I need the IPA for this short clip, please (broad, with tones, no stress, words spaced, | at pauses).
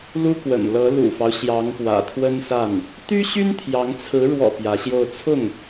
lu˥kwə̰˨˩nlɤ˧˥ lṵ˨˩fɑ˦ʊ̯ ɕjɑ˧˥ŋpwä̰˨˩t̪ʰwə˥nsa˥˩n | t̪y˥ɕy˥n t̪ʰjɑ˧˥ŋt͡sʰɹ̩˧˥ ɻwɔ̰˨˩ pjä˧˥ɕjo˥˧ʊ̯ t͡sʰʊ˥˩ŋ